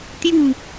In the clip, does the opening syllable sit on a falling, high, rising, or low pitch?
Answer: falling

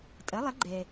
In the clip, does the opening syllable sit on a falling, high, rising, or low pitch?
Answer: rising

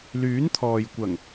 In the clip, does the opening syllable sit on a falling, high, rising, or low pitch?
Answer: rising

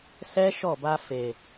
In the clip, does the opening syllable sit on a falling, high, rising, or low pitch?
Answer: high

